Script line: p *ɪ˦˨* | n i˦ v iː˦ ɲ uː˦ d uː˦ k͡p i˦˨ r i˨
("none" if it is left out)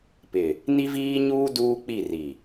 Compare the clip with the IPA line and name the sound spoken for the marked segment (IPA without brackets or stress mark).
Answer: ɪ˨